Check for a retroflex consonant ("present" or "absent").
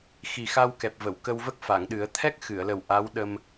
absent